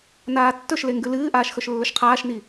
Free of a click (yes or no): yes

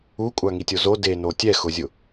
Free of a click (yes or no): yes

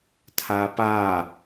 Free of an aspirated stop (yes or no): no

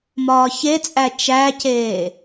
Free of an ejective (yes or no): no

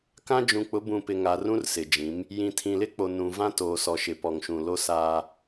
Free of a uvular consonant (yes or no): yes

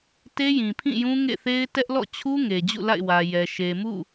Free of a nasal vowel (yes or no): no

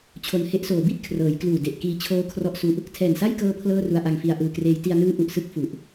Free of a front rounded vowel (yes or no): yes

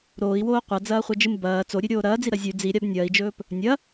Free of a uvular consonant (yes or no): no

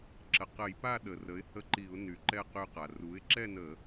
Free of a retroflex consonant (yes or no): yes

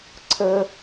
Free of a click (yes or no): no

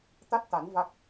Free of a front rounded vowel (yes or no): yes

